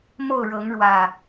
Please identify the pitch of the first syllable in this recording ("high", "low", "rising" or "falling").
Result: falling